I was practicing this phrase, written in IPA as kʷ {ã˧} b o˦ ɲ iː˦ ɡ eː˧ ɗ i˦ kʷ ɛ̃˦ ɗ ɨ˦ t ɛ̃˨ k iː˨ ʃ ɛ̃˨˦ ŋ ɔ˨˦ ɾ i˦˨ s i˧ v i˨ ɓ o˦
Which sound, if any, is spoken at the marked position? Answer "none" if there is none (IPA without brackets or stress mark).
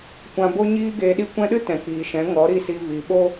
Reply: ã˧